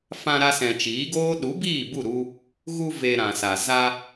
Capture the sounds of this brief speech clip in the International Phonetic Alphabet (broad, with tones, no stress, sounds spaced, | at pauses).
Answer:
f ã˧ ɾ a˧ s ɛ̃˨ t͡ʃ iː˨˦ ɡ oː˦ ɗ u˨˦ b iː˦˨ b u˦˨ ɾ u˧ | ɣ u˧ v e˨ ɾ ã˨ s a˨ z a˧